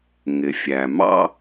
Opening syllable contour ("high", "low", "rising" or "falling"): low